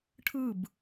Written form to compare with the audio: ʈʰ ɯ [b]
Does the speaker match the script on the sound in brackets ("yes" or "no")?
yes